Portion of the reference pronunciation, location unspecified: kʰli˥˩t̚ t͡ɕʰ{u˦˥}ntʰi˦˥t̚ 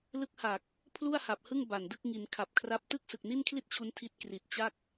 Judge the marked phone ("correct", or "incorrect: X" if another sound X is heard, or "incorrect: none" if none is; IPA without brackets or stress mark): correct